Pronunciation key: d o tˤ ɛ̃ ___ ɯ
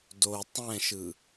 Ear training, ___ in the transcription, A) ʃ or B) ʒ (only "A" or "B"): A